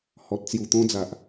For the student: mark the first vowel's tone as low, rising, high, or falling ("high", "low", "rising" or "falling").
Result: low